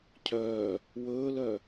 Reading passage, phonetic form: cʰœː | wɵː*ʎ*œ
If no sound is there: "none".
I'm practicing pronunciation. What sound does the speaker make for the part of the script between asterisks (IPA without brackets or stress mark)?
l